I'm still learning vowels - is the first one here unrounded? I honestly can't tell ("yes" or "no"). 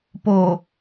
no